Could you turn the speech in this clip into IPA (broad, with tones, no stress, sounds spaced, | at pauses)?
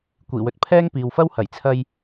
kʷ iː˨˩ w ɵ˨ t̚ pʰ ɛː˥ ŋ p iː˨ w f ɐ˥ w h ɐ˨˩ j t͡sʰ ɐ˧ j